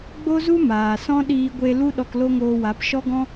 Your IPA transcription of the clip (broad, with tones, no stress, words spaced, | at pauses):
ɡ͡bo˦zu˦ maː˨sɔ̃˦ ɗiː˧ɡʷe˧ lu˦ ɗɔ˧klo˦ŋoː˧wa˨˦p ʃɔ˦ɡɔ̃˦